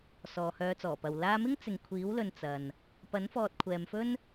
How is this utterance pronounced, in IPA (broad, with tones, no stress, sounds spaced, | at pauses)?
s ɔː˨ h œː˧ t͡s ɔː˨˩ p ɐ˨ w l aː˧ m ɪ˥ ŋ t͡s ɪ˨ ŋ kʷʰ iː˨˥ w l ɵ˨ n t͡s ɐ˨ n | p ɐ˨˥ n f ɔː˨ t̚ kʷʰ ɛː˨ m f ɵ˥ n